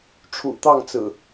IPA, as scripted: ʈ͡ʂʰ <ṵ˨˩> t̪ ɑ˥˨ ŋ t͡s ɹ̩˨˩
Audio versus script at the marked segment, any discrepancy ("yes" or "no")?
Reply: no